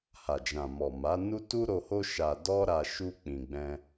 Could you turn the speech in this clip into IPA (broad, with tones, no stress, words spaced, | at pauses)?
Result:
ha˨d͡ʒã˨ mɔ˨ ma˨˦nu˦ tu˦ɾo˧ho˦ ʃa˧dɔ˦ɾa˧ ʃu˦ k͡pĩ˧ɡ͡bɛ̃˦